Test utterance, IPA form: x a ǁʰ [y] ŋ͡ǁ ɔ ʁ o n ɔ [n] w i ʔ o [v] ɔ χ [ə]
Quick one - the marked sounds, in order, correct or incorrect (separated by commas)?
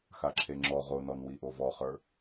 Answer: incorrect, correct, correct, incorrect